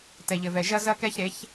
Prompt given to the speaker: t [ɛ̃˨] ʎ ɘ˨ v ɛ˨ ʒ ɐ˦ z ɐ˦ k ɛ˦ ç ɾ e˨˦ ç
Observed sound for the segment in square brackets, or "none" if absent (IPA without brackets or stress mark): ɛ˨